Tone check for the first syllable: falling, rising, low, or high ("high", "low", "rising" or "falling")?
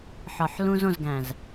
low